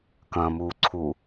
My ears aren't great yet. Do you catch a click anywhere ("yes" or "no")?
yes